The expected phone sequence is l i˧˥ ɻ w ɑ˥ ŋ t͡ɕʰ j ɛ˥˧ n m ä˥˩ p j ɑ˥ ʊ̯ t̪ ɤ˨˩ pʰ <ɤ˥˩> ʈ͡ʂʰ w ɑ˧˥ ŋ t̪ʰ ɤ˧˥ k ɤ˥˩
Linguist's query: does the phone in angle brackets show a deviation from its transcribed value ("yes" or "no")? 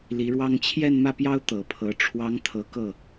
yes